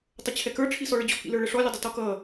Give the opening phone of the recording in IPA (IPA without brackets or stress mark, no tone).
tˤ